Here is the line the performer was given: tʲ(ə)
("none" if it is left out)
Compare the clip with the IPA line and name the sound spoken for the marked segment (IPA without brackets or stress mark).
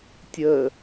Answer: ə